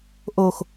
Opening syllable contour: falling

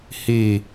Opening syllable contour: falling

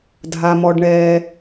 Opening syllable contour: low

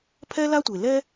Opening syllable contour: high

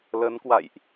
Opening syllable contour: rising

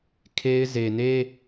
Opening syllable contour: high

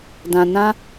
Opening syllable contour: low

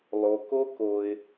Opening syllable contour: low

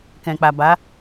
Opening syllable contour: low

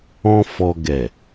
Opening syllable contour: high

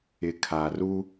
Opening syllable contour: low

